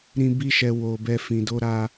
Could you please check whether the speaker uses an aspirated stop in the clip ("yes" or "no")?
no